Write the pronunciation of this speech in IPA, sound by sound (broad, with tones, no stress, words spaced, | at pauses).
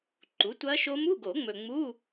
ǃu˩˥tʷɐ˦˥ʃo˦˥m u˧˥˧ɡo˨˩˦ ŋ͡mɵ˨ŋ͡mu˧˥˧